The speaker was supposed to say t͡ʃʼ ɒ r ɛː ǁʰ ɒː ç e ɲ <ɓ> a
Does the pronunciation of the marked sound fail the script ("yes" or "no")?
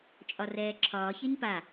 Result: yes